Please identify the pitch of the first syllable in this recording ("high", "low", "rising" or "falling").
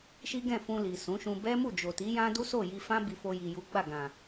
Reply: high